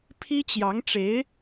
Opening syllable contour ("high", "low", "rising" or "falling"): high